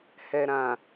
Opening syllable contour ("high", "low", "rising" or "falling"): low